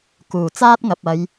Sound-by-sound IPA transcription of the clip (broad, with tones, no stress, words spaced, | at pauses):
kuː˨˩ t͡saː˥t̚ŋɐ˨p̚ɐ˨˧j